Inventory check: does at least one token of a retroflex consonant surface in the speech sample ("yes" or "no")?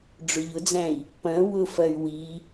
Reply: yes